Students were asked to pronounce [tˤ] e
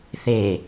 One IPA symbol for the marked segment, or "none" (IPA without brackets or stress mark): θ